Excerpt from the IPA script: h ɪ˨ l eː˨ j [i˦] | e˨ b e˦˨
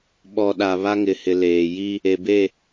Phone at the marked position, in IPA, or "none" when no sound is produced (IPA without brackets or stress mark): i˦